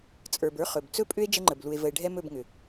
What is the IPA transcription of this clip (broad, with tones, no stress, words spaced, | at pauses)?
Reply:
t͡sʼə˞˨bə˞˦ χɵ˨b t͡sɵ˦pʼʏ˦e̯ d͡ʒə˦ŋ͡ǃə˨blu˨e̯ və˨e̯ɖʱɛ˦mɵ˦˨b ŋʏ˨